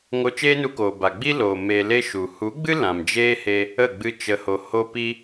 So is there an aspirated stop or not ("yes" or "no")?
no